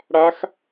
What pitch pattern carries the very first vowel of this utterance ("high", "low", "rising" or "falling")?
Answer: rising